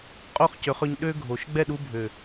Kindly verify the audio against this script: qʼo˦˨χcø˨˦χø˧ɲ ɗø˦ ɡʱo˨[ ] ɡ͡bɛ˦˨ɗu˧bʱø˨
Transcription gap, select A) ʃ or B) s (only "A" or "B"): A